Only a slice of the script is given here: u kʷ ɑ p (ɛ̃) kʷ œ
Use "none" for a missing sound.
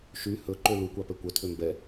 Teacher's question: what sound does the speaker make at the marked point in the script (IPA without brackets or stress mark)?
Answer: ɛ